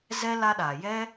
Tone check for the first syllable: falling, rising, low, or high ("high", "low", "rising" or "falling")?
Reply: high